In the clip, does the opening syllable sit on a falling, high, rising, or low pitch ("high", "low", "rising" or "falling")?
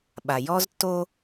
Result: low